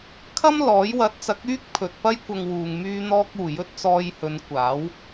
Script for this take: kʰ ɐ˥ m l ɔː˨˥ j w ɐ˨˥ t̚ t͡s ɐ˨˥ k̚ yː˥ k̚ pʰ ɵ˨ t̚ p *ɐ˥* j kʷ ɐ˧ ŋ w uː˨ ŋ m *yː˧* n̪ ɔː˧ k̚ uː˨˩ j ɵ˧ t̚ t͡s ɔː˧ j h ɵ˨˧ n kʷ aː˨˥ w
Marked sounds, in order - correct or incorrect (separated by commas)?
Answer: correct, correct